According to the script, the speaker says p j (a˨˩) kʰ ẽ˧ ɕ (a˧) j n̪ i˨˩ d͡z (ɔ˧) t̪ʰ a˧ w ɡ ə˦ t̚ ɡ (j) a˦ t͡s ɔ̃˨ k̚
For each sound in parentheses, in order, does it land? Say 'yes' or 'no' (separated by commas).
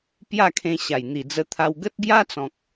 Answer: no, no, no, yes